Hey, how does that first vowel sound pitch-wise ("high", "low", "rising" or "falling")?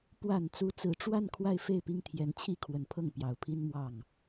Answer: low